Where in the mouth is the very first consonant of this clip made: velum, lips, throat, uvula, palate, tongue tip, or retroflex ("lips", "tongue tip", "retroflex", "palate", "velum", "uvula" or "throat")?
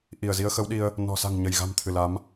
throat